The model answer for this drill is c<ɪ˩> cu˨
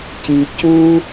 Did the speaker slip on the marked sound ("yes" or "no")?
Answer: yes